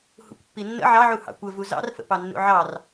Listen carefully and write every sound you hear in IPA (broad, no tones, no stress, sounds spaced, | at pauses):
h ṵ kʷ pː i nː ə̰ ʕ ɑ ʕ u h ɑ̰ kʷ ə v u z ɑ̰ r f ə̰ p ɑ nː ṵ ʕ ɑ r